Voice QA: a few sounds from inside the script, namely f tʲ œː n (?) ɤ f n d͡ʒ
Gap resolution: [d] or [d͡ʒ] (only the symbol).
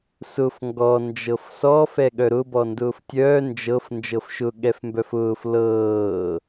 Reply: d͡ʒ